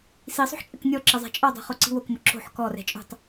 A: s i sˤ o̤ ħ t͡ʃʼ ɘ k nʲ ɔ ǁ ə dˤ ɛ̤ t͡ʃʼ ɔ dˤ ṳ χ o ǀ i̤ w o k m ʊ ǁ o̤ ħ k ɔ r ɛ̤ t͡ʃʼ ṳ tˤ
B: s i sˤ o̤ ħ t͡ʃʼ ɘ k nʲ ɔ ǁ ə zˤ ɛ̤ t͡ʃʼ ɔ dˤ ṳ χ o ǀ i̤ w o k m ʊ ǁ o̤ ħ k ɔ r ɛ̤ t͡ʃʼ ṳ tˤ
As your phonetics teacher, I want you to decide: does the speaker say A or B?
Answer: B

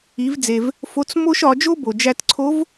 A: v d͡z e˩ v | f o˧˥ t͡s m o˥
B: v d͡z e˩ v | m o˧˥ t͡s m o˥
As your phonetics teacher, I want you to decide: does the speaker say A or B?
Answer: A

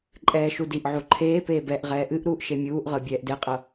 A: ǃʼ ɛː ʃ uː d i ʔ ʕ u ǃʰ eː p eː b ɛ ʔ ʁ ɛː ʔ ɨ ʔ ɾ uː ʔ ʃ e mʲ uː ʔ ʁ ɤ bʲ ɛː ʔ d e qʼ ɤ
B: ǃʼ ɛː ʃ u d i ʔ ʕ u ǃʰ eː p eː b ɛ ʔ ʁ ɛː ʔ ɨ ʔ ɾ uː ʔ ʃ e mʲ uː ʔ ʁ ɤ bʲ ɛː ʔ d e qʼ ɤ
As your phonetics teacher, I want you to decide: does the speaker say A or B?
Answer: B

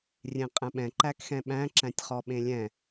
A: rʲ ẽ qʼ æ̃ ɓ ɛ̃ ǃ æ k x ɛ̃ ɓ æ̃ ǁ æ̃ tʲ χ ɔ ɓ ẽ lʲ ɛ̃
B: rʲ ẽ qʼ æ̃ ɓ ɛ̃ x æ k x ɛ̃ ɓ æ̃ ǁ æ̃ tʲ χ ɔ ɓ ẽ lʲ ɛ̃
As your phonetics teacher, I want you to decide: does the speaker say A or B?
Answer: A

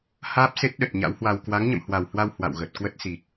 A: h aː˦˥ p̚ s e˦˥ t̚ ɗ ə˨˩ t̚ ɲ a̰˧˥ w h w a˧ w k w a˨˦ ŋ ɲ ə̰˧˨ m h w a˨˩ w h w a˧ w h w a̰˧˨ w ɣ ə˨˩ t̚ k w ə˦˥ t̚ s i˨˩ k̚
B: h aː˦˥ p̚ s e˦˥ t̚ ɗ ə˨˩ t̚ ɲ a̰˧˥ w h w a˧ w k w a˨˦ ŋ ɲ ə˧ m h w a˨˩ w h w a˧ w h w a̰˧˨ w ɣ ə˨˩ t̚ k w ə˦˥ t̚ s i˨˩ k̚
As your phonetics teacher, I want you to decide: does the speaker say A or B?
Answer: A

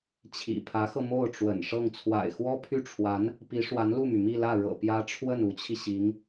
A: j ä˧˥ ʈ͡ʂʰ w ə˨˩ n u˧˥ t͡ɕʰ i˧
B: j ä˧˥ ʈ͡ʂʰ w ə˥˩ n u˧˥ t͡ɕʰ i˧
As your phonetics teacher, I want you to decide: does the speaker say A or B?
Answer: B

